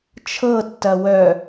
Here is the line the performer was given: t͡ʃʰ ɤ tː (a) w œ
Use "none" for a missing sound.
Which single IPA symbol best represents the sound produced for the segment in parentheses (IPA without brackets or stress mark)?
ɐ